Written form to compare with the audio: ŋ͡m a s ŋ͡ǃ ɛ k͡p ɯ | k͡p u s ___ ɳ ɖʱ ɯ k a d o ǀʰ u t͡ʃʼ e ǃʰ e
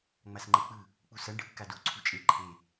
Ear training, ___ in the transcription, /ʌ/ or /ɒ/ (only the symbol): ʌ